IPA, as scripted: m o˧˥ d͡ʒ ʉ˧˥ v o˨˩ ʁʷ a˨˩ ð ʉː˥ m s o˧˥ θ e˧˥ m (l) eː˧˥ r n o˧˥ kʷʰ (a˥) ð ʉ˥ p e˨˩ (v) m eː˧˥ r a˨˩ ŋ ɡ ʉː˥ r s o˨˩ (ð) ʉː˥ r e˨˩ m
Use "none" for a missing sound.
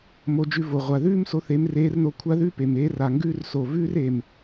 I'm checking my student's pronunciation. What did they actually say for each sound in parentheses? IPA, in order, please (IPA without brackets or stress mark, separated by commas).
r, a˥, none, v